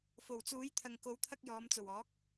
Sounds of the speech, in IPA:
fo˨˩wt͡suː˨˥jt̪ʰɐ˨ŋ ko˨˧wt̪ʰɐ˧k̚ jɔː˨˧m t͡so˨˩wɔː˨˥k̚

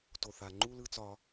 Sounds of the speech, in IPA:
to˧˩˧θa˧˩˧ ŋ͡ǃu˥˧lɯ˥˧ t͡sɒ˧˥

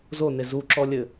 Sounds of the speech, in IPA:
zone zuǁɔlʲɘ

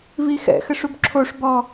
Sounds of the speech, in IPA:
vixɛ̰ xɘʂubǁʰoʂ bɔ

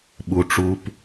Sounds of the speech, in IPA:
ɓu˨ ʈ͡ʂu˧p

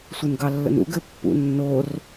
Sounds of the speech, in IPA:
sʷɘnɡɑlːə̰nṵɡ ɘpːṵnːor

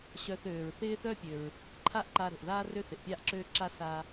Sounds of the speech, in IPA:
ɕœ˧θøː˩ɹ θɪː˥θœ˥pʲø˩ɹ | ǃʰa˥ʔǃa˧ ɾo̤˩ʔðaː˥ rø˥θɪ˩ʔpʲaː˥ʔǁøː˥ ǁa˥saː˧

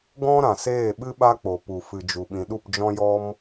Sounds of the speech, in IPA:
ɡɔ̃˦ ɾã˨seː˦˨ɓɨ˦ ɓa˦k͡po˨pu˨ fɨ˨d͡ʒu˨ɓĩ˨ɗu˦˨p d͡ʒɔ̃˦jɔ˦m

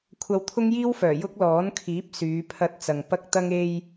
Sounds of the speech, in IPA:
kʷʰɐ˧wt̪ʰʊ˥ŋjiː˥wfœː˨˩ jʊ˥k̚lɔː˨˥nkʰiː˨˥p̚ syː˨˧pʰɐ˧t̚ t͡sɐ˨ŋpɐ˥k̚t̪ɐ˥ŋ e˧j

